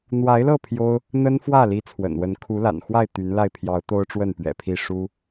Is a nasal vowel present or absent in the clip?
absent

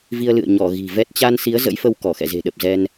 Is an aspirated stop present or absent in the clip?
absent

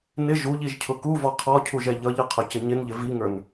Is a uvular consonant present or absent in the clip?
present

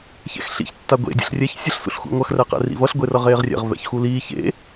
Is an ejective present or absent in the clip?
absent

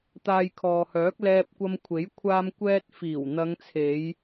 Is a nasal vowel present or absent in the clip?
absent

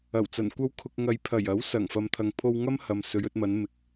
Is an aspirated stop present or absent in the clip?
present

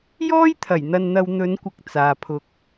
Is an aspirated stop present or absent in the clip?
present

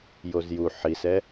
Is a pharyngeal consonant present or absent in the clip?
present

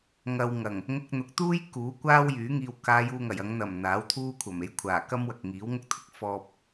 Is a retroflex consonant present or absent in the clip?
absent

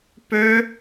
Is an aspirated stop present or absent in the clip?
absent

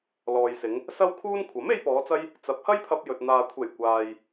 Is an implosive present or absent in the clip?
absent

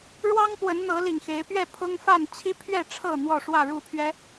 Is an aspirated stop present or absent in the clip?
present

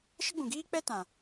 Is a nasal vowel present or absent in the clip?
present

